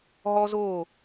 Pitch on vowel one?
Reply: high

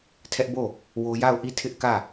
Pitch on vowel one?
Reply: high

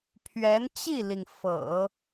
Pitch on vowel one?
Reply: rising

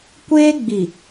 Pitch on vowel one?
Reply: high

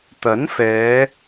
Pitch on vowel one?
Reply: rising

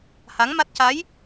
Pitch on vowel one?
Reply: rising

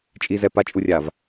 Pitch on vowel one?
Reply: low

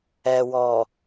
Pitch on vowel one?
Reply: low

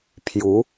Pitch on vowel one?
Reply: rising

